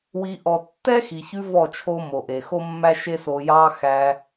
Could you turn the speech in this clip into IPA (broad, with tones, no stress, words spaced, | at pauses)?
wi˧ ʔɔ˨ tːɛ˦xi˨çʉ˧ vɔ˦˨t͡ʃʰo˦ mo˨ ʔe˨xo˦mːæ˦ ʃe˦so˧jɑ˦ xæ˧